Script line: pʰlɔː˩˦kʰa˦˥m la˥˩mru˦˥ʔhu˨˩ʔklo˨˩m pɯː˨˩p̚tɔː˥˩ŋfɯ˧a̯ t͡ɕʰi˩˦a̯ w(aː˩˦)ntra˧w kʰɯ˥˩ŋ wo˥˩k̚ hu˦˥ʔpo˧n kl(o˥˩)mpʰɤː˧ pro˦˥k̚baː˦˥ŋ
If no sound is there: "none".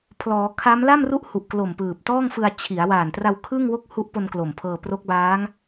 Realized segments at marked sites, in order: aː˨˩, o˨˩

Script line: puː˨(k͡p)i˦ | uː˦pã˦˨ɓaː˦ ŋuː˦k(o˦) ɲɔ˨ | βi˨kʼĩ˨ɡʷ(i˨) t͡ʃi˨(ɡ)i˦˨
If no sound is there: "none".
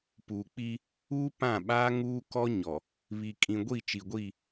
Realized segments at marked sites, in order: k͡p, ɔ˦, i˦˨, ɡʷ

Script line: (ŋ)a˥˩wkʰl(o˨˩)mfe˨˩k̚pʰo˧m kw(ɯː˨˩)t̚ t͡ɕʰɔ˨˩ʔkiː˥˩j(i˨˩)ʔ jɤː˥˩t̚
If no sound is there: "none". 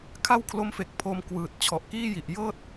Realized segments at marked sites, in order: kʰ, o˦˥, ɯː˨˩, i˨˩

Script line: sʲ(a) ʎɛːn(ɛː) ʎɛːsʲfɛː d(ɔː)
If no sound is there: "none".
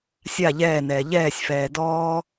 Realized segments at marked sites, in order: a, ɛː, ɔː

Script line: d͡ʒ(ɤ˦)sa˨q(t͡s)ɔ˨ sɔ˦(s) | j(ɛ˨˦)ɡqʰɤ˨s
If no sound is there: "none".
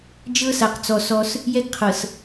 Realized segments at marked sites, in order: ɤ˦, t͡s, s, ɛ˦

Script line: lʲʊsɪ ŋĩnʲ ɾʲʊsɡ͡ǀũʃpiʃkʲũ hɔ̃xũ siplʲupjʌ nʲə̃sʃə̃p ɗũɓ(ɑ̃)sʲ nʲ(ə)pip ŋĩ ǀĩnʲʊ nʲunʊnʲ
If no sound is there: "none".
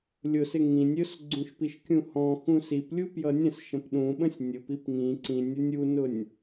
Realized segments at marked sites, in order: ə̃, ʊ

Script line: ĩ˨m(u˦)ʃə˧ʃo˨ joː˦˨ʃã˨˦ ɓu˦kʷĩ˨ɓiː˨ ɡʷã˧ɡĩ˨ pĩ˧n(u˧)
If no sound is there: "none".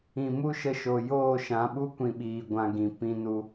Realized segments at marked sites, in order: u˦, u˧

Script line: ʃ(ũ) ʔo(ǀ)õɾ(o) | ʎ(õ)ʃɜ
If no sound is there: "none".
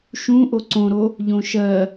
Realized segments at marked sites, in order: ũ, ǀ, o, õ

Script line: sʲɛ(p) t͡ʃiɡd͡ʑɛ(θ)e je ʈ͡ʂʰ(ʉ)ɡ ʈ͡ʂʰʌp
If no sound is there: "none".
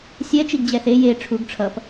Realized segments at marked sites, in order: none, θ, u

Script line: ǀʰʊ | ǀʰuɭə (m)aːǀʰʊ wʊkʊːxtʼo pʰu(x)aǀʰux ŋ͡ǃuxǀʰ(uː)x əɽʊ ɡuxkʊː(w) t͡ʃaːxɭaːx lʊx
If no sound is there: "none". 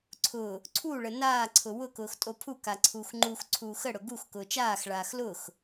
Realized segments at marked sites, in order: n, k, uː, none

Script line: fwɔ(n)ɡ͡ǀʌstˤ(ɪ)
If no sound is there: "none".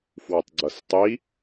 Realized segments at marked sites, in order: tˤ, i

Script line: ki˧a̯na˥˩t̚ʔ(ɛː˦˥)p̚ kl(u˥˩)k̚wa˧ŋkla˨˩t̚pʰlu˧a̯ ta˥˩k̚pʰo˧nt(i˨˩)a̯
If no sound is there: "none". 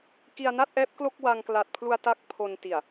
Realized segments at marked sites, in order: ɛː˦˥, o˥˩, i˨˩

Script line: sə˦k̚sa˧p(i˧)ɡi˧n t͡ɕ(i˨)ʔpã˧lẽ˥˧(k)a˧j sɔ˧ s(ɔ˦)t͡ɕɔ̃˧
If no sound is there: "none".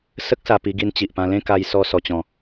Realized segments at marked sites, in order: i˧, i˨, k, ɔ˧

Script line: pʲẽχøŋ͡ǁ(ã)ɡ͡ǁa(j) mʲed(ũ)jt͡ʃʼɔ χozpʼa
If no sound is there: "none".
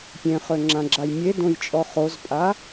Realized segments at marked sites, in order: ã, j, õ

